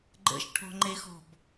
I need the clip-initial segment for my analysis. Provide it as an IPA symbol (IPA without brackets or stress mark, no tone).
ɡ͡ǃ